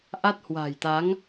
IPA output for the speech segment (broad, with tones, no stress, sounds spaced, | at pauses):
ʔ a˦˥ t̚ h w a̤˨˩ j t̪ a˨˦ ŋ